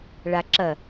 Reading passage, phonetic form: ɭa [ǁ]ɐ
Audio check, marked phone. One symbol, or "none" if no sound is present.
ǁ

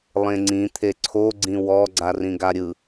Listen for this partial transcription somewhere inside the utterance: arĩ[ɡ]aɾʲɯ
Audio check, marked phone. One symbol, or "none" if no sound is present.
ɡ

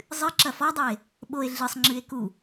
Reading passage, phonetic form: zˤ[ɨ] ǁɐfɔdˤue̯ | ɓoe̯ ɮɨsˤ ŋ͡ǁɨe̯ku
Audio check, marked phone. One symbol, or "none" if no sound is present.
ɨ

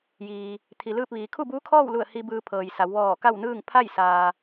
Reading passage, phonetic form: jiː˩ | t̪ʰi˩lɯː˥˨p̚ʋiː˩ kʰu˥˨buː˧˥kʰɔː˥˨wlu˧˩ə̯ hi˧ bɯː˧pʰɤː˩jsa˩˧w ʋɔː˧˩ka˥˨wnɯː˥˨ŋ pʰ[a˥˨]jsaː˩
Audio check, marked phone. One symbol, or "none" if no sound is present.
a˥˨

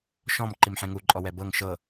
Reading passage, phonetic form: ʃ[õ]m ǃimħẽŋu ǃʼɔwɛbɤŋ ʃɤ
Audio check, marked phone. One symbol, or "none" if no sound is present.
ɔ̃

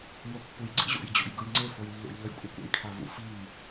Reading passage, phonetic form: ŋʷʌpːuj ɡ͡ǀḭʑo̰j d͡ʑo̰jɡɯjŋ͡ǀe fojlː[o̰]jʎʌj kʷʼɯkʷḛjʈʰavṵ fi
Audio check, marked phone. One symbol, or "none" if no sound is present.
ṵ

